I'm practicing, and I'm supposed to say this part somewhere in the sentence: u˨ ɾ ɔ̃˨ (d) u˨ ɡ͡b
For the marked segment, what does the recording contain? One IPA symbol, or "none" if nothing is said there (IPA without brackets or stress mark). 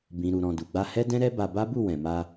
d